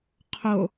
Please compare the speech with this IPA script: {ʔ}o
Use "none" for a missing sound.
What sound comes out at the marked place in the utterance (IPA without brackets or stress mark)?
qʰ